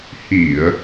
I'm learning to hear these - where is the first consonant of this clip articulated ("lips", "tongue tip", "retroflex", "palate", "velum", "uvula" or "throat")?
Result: throat